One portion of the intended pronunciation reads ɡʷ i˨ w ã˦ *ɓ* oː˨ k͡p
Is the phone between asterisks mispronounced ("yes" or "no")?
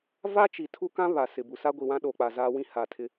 yes